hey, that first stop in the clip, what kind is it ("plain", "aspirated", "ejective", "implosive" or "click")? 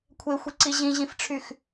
aspirated